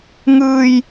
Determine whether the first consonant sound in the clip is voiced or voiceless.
voiced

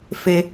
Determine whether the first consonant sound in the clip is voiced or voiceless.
voiceless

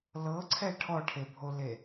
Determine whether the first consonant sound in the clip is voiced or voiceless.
voiced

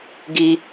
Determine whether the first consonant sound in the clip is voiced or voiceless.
voiced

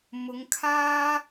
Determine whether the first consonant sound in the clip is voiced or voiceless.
voiced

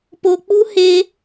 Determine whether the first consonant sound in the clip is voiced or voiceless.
voiceless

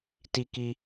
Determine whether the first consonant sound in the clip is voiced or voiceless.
voiceless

